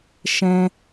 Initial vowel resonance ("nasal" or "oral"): nasal